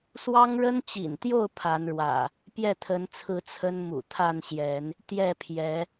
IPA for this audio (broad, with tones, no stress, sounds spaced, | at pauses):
s w ɑ˦ ŋ ɻ ə˦ n t͡ɕ ḭ˨˩ n t̪ j o˥˨ ʊ̯ pʰ a˨˦ n ɻ w ä̰˨˩ | p j ɛ˥˨ t̪ʰ ə˨˦ n t͡sʰ ɹ̩˨˦ t͡sʰ ə˦ n m ṵ˨˩ t̪ʰ a˥˨ n ɕ j ɛ˨˦ n | t̪ j ɛ˥˨ pʰ j ɛ˨˦